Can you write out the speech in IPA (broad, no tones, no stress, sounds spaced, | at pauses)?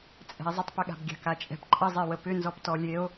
t͡sʼ ɛ̤ e̯ zˤ ə tˤ p ʏ ɠ a̤ b ɡʲ a̤ k a t͡ʃʼ ɛ̤ p ǃʼ ə zˤ e w ə p ʏ n z ɔ p t ɔ lʲ e o̯